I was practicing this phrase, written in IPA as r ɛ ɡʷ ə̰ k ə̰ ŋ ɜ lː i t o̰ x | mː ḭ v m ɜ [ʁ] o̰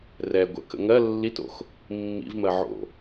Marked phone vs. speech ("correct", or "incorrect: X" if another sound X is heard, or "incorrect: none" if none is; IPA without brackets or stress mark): incorrect: ʕ